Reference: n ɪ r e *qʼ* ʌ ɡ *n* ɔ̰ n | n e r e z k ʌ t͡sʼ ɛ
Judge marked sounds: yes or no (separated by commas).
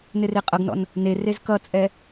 yes, yes